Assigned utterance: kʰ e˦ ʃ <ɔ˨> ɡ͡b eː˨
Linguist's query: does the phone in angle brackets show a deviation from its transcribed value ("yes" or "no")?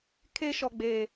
no